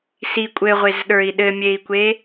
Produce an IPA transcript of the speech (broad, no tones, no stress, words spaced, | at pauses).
si kʷʼɘʁʷezɗə˞i̯ ɗɘmʲei̯kʷe